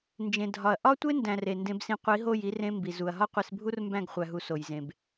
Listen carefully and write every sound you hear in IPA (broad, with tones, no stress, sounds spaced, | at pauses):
n d͡ʒ ẽ˨ dʱ ɒ˨ ɐ̯ ʔ ɒ˦ tʷ e˦ n d æ̃˨ r e˨ n d ẽ˧ b s ĩ˧ qʷ i˨˦ ɦ o˦˨ j i˧ r ẽ˧ m b i˨ z u˨ ɐ̯ ɦ ɒ˦ qʷ e˧ s bʱ u˦ r m b æ̃˦˨ ɡ χʷ æ˨ ɦ u˨ s o˨ j z ẽ˨ b